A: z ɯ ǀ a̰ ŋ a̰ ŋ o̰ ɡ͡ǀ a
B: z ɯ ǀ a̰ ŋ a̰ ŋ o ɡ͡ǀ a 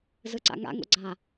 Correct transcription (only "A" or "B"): A